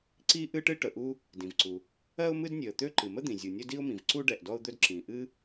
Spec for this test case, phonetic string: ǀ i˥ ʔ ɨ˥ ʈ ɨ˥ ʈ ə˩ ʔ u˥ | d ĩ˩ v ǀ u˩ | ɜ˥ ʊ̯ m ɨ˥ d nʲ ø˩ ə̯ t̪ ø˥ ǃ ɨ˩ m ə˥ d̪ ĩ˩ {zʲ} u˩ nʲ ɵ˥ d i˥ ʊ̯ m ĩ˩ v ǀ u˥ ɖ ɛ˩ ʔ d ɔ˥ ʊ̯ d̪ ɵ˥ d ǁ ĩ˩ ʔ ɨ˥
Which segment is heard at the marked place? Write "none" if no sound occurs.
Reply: zʲ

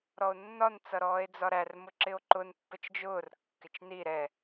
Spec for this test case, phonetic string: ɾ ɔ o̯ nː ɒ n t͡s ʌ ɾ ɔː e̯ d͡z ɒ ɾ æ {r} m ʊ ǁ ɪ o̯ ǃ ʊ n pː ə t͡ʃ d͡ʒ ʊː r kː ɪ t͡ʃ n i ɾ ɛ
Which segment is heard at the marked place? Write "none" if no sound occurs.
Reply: r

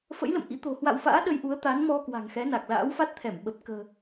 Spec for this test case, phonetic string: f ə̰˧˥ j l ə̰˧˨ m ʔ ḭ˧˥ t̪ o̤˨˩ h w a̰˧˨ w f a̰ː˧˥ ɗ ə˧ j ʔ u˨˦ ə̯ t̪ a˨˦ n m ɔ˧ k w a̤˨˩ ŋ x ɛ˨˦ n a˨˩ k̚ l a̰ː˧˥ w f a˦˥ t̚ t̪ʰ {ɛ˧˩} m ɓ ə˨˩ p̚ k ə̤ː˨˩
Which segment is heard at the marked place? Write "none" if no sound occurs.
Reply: ɛ˧˩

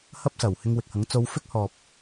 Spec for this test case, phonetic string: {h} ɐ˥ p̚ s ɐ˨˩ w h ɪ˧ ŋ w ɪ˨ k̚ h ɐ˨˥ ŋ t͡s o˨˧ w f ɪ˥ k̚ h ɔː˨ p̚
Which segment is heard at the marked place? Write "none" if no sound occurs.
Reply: h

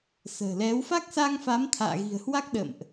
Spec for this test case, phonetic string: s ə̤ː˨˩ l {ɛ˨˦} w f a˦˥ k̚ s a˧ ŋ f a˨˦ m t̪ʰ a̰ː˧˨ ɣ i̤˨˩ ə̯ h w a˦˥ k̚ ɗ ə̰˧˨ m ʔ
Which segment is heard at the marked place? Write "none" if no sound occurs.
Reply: ɛ˨˦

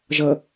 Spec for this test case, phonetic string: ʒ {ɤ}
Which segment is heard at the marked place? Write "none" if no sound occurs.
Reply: ɤ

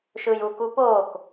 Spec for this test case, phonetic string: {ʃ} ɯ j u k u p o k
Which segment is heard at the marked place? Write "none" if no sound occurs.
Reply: ʃ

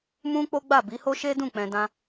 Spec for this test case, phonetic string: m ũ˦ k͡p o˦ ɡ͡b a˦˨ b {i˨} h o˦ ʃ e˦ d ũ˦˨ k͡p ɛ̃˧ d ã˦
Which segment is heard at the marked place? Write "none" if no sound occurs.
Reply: i˨˦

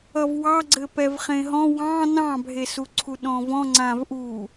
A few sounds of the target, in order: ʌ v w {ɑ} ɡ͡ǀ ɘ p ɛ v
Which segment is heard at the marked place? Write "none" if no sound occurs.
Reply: ɑ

